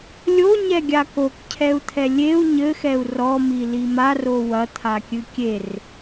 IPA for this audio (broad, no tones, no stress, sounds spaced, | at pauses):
lʲ o ɲ ɛ ɡʲ a k o k cʰ ɛ u̯ t̪ʰ ɛ lʲ e u̯ ɲ ɘ x ɛ u̯ r ɔ m i l i m a r o w ɐ t̪ʰ a kʲ ɨ kʲ e r